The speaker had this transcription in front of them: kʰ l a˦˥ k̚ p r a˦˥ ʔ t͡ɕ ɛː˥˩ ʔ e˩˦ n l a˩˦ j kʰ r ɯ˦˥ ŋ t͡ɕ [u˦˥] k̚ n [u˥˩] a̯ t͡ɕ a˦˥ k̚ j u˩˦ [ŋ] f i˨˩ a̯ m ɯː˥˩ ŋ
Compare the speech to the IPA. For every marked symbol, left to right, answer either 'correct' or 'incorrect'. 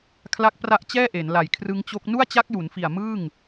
incorrect: o˦˥, correct, incorrect: n

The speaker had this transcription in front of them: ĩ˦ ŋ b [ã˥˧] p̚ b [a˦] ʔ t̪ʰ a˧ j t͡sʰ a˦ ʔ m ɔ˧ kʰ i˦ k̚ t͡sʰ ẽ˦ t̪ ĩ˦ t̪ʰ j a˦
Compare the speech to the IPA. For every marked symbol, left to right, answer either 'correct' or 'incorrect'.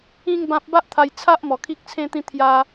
incorrect: ã˦, correct

